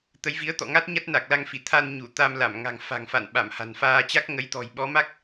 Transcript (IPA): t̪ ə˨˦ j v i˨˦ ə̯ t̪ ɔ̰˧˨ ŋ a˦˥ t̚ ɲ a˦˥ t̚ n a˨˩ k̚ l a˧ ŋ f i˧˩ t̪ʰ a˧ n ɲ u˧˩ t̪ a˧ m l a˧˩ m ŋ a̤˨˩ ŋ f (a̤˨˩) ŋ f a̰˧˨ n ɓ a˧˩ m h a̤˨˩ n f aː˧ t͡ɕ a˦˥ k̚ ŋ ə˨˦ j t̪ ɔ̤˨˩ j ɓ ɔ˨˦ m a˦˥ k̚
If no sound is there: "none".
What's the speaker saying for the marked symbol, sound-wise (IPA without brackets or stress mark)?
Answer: a̤˨˩